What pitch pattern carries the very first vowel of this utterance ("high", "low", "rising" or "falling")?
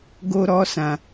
high